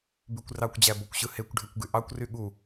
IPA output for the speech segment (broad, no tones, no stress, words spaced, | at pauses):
bykʷrɑkʷd͡ʑæ bokʷɕɯhekʷɖʱekʷ ɡyʔɑkʷry ɠu